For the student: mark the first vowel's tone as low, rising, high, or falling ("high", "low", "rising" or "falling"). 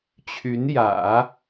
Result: rising